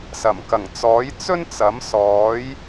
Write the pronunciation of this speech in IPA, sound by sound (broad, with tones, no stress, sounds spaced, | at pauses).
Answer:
s ɐ˨˩ m k ɐ˨˩ ŋ t͡s ɔː˨˥ j t͡s ɵ˥ n t͡s ɐ˨˥ m s ɔː˨˥ j